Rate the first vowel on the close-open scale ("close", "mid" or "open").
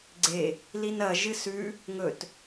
mid